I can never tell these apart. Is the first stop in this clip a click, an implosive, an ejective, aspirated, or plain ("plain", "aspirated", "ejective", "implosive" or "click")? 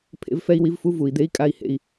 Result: aspirated